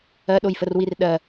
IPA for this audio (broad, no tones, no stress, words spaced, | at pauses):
ɜɗojfərwir ɗɜ